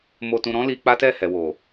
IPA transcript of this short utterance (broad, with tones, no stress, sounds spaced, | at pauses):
m o˧ t ũ˧ ɾ ɔ̃˦ l i˧ k͡p a˦ t ɛ˦˨ h ɛ˨ w o˨